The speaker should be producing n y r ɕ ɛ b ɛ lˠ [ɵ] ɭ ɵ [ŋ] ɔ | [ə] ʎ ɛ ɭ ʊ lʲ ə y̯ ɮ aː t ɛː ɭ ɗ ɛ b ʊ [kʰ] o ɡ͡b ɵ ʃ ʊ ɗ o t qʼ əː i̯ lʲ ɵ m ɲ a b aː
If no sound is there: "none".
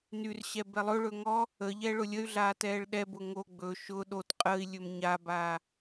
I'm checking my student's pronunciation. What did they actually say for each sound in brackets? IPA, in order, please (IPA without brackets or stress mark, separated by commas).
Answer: ɵ, ŋ, ə, ŋ